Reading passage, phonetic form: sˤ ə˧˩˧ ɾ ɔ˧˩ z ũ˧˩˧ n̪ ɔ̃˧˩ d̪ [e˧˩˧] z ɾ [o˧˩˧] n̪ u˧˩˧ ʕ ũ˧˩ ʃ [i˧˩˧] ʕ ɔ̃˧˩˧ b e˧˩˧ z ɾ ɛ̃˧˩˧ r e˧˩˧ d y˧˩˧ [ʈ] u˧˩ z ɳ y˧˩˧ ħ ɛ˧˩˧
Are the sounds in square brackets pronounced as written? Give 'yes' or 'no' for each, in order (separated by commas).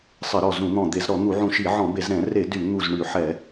yes, no, yes, no